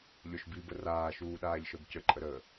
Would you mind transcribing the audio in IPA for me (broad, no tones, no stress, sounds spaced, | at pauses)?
ʎ œ ʃ b i b ə r aː ʃ uː ɗ aː ʎ ʃ œ ɡ c ə ǃʼ ə ɾ ə